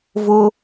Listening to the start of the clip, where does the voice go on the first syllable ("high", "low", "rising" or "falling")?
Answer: high